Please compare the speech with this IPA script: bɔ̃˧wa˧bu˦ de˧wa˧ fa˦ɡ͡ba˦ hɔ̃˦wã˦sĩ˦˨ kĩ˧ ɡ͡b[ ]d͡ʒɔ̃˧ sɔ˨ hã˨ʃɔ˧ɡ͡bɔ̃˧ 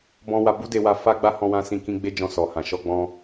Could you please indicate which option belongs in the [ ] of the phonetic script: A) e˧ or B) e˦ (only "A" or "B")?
B